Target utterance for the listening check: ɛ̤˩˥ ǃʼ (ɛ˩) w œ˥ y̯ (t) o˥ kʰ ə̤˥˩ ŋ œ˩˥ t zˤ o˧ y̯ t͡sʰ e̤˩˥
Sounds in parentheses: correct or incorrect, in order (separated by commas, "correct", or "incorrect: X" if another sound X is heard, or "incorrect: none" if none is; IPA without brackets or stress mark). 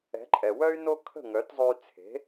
correct, incorrect: n